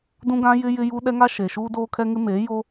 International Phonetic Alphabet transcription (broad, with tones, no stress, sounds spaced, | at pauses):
d ũ˦ ɡ ã˦ j ɪ˦ j ɪ˦ j u˦ ɗ ɛ˦ ŋ a˦ ʃ e˨ ʃ uː˦ d oː˦ kʰ ɛ˦ ŋ ɪ˦ m eː˨˦ j o˦